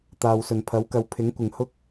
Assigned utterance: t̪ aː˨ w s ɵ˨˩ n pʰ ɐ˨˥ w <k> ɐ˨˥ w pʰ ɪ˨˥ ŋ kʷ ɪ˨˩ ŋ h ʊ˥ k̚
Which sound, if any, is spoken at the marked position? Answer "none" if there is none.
k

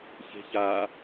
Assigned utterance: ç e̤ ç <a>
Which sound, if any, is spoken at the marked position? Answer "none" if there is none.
a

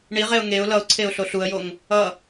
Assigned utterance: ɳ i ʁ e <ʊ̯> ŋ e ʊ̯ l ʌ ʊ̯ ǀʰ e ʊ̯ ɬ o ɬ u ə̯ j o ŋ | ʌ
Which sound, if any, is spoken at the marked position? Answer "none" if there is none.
ʊ̯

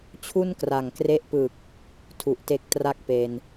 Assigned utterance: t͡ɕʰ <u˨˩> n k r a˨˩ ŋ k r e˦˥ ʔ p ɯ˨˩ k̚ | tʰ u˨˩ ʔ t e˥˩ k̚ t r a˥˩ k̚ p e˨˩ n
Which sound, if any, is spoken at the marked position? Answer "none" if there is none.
u˥˩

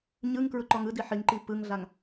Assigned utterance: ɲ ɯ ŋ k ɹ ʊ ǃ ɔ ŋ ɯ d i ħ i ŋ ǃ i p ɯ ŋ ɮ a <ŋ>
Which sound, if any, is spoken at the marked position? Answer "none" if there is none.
ŋ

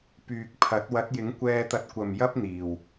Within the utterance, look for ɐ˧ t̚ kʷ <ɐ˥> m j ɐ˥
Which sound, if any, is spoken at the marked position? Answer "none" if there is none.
ɐ˨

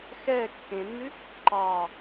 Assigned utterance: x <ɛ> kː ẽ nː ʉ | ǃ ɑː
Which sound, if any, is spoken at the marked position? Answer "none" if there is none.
ɛː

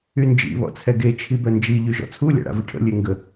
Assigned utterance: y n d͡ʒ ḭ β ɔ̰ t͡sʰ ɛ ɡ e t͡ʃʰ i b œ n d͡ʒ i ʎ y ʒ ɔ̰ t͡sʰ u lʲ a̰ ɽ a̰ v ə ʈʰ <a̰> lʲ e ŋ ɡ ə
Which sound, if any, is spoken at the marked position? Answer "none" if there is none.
ə̰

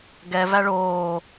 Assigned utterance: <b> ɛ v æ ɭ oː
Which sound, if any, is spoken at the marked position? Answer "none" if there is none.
ɡ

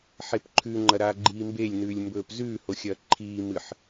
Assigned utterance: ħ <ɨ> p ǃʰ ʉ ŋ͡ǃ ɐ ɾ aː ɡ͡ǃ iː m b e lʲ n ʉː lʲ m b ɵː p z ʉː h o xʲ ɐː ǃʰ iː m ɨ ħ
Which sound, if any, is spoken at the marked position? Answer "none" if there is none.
e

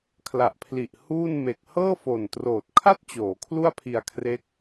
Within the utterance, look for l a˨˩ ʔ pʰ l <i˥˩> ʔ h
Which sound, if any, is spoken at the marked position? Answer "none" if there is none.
i˨˩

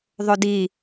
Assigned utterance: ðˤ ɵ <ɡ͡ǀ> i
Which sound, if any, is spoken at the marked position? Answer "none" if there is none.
d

